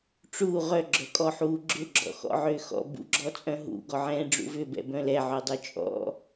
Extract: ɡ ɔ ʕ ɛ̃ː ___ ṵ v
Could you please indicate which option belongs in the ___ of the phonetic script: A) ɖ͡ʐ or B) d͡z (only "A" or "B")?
A